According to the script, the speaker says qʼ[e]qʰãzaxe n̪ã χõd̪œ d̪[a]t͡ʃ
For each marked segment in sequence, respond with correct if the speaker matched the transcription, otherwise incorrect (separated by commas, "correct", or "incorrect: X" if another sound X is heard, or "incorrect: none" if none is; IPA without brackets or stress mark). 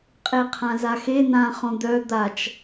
correct, correct